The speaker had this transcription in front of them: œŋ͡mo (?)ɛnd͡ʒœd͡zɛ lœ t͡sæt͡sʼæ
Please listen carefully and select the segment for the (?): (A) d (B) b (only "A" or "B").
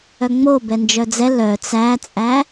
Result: B